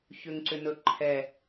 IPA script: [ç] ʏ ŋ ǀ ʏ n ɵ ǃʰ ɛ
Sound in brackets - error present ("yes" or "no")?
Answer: no